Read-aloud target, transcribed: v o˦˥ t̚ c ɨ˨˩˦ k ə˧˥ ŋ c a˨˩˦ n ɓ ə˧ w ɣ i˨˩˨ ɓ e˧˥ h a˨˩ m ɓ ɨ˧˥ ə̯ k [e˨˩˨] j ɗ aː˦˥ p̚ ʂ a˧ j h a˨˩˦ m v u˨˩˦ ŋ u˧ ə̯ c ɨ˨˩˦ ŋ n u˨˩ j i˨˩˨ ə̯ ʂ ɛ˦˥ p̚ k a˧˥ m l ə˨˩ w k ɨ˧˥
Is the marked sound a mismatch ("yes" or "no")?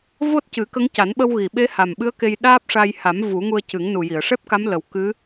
yes